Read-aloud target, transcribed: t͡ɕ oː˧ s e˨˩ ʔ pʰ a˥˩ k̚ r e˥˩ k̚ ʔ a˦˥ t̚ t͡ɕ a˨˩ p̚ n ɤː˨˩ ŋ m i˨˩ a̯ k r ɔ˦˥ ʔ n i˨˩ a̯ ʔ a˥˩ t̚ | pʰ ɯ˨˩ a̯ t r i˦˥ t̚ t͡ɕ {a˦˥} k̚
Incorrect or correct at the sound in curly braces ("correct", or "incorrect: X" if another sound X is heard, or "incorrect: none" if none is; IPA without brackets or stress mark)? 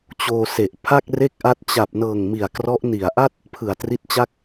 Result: incorrect: a˥˩